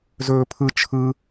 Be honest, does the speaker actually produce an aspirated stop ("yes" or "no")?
yes